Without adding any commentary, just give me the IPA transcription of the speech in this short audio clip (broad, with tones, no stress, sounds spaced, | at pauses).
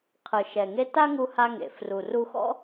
qʰ ɯ˩ ʃ ɛ˩ ŋ e˧ t a˥ ŋ u˧ h a˧ ŋ ḛ˩ f r u˩ r u˧ x ɔ̰˥